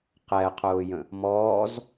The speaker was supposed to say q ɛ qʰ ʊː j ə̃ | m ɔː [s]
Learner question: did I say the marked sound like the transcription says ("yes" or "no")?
no